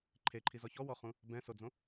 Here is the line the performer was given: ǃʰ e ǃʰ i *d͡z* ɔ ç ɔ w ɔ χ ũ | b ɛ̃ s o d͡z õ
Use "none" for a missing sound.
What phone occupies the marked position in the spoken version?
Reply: z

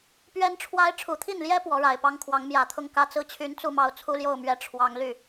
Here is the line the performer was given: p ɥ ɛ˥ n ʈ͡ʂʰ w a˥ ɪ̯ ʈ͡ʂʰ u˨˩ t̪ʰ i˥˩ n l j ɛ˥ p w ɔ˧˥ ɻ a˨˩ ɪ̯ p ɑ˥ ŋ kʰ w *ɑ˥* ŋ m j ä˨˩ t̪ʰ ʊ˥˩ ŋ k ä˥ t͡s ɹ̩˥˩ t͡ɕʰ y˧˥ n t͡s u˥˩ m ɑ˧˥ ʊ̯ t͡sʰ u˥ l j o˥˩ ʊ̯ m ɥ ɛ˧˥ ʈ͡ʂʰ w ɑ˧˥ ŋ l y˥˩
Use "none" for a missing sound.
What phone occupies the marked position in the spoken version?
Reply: ɑ˧˥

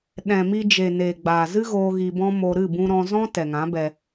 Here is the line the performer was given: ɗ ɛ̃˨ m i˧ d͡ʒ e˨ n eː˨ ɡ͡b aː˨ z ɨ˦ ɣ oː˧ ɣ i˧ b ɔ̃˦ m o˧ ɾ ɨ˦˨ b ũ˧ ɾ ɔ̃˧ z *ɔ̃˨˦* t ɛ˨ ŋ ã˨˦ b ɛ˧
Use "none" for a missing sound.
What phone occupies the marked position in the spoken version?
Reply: ɔ̃˦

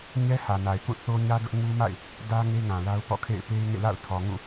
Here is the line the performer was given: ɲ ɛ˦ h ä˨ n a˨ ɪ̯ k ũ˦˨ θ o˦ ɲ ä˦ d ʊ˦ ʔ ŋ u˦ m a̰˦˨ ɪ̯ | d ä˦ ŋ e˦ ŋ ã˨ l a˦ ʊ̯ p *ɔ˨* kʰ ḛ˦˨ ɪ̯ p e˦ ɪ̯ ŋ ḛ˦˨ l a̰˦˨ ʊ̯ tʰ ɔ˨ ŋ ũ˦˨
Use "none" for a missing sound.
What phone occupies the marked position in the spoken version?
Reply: ɔ̰˦˨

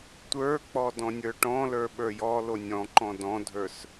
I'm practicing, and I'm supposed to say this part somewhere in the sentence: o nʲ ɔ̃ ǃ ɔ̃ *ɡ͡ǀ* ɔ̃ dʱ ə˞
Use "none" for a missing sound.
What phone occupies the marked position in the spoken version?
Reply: d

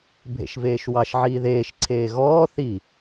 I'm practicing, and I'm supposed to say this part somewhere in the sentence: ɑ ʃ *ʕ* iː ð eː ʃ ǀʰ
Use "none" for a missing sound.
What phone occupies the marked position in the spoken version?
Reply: ʕ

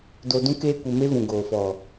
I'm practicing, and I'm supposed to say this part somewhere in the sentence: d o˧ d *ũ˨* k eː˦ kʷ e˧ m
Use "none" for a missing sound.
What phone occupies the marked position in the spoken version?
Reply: ũ˦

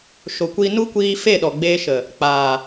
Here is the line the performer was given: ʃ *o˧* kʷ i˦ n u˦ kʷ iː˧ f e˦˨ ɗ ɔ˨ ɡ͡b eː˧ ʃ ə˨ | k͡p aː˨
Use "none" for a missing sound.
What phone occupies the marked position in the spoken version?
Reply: o˧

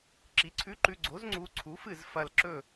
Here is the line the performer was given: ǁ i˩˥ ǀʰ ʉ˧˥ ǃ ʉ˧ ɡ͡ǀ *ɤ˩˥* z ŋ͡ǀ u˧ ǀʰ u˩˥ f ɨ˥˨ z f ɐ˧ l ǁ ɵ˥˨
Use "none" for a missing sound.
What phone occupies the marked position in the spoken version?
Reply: o˩˥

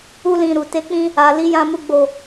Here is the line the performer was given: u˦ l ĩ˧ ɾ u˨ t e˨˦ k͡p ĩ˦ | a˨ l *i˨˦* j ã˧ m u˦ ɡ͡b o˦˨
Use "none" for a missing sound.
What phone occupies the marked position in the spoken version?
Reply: i˨˦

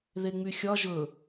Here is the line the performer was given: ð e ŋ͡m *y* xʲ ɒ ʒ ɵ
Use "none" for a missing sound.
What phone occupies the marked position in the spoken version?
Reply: y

